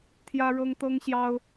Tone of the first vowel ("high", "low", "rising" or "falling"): high